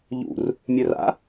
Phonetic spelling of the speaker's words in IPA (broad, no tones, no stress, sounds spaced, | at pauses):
ʎ ṵ r | mʲ œ r a̰